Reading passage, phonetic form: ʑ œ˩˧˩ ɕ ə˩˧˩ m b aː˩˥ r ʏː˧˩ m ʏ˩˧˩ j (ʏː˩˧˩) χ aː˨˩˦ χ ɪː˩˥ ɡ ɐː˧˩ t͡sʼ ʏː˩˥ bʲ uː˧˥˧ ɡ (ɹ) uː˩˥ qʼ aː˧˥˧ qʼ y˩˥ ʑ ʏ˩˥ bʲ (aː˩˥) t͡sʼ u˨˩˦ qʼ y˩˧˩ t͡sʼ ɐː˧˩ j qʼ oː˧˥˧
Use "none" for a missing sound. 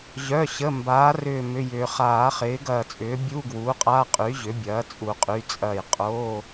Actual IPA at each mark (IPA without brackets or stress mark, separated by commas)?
ʏː˩, w, ɐː˩˥